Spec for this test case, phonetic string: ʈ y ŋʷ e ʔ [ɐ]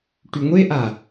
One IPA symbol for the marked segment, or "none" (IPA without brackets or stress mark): a